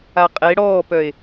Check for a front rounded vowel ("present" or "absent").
present